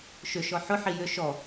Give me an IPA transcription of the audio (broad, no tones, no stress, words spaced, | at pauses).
ʃʏʃɔ ħʊ ħijʏ ʃɔ